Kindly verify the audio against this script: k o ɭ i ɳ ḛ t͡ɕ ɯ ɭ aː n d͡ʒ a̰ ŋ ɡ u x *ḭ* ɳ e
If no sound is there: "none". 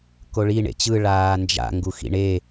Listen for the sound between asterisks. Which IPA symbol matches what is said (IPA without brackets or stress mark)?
ḭ